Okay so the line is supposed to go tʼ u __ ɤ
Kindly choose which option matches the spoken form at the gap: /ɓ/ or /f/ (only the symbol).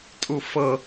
f